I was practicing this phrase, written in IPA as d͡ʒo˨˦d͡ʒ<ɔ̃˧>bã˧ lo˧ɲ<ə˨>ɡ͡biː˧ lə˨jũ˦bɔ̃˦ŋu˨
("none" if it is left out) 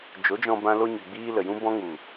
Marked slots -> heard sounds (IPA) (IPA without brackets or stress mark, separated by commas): ɔ̃˧, ə˨